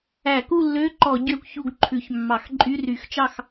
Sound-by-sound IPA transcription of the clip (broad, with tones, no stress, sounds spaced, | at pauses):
æ˧˩˧ k u˥˨ lː ø˧˥˧ ǃ ɔ˧˩˧ ɟ ø˥˨ kʷ ç u˥˨ ɡ ǃʰ ʉ˧˩˧ ç mː ɑ˧˩˧ x ǃʼ y˧˥˧ r y˧˩˧ x t͡ʃ ɑ˥˨ x